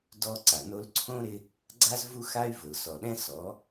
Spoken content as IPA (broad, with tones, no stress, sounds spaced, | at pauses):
d ɔ˦ ǀ a˨ n o˧ l ǀʰ õ˦ ɾ ɪ˧ | ɡ͡ǀ a˦ z v u˦ x a˦ y̯ v ʊ˨ l s ɔ˨ ɗ ɛ̃˦ s ɔ˨˦